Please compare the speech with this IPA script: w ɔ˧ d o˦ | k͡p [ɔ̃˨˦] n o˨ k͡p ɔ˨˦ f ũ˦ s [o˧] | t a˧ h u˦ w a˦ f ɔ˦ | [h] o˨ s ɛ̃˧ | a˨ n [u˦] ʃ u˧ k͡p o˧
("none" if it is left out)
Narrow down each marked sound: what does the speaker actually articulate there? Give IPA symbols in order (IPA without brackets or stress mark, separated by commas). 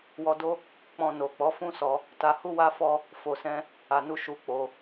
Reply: ɔ̃˧, ɔ˧, f, u˧